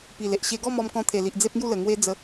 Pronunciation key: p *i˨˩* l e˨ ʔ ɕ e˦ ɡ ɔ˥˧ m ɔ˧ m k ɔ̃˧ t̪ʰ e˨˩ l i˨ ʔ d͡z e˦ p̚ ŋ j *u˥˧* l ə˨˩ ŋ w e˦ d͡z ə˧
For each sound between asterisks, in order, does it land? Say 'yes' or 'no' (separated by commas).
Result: yes, yes